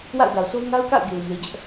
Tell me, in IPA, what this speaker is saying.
w a̰˦˨ ʊ̯ d a˨ ʊ̯ s o˦ ʊ̯ ŋ a˦ ʊ̯ k a̰˦˨ ʊ̯ ɡ e˨ ɪ̯ m e˨ d͡ʑ ɛ˦ ʔ

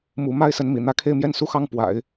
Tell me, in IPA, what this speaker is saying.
m u˧˥ m a˥ ɪ̯ s ə˧˥ n m ḭ˨˩ n̪ ä˧˥ kʰ e˥˧ ɪ̯ m j ɛ˥˩ n s u˥ x ɑ˥˩ ŋ p w a̰˨˩˦ ɪ̯

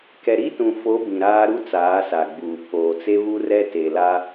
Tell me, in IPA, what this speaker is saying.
k ɛ˨ ɾ i˦ t ũ˨ f o˨˦ b ĩ˨ ɾ aː˦ ɾ u˦ t͡s aː˨˦ s a˨ ɡ͡b uː˨ pʰ oː˨ t͡s e˦ β u˦ r ɛ˦ t e˨ l a˦

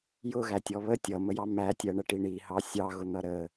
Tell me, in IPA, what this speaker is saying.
j ʊ ɣ æ tʲ ɔ β ə tʲ ʌ m ə j ɑ m æ tʲ ɜ ɳ ə ʈ i ɳ i h ɑ sʲ ɑ ɣ ʊ n̪ ʌ ɾ ə

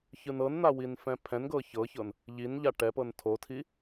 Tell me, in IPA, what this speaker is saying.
ç ɯ n ɤ n n̪ a w i n f ɛ̃ pʰ ɛ̃ n ɡ ɤ ç ɤ ç ɤ n | ʎ i n ʎ a ʈ ɛ p ɤ n tʰ o tʰ i

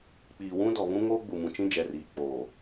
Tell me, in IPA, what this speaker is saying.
k͡p iː˨ w ũ˦ d ɔ˨ β ũ˦ ŋ oː˦ ɡ͡b u˨ m ũ˨ t͡ʃ ĩ˦ d͡ʒ ɛ˨ r iː˨ k͡p oː˨

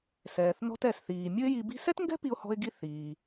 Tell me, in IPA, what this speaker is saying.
s ɛː˩ θ n ɔ̤˧ t ɛ˩ s θ iː˩ mʲ ʊ˥ ɪ̯ j i˧ b i̤˥ s ɛ˥ t ŋ ɡ ɛ̤˥ p i˧ ʊ̯ h ɔ̤˧ ɪ̯ ɡ i˧ θ iː˩

